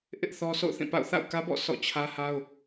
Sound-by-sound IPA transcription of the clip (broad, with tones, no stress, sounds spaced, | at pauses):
ʔ ɪ˦ ʔ θ ɔ˦ sʰ o̰˦˨ ʊ̯ θ ĩ˦˨ p a̰˦˨ ʊ̯ θ a̰˦˨ ʊ̯ k ä˦ b ɔ̰˦˨ sʰ ɔ̰˦˨ t͡ɕʰ ä˦ h a˦ ʊ̯